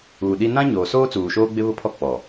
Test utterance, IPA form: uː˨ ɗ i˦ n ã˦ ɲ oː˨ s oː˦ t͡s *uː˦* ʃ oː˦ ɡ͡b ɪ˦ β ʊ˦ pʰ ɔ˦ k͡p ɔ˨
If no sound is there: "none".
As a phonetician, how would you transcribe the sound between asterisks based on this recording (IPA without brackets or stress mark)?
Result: uː˨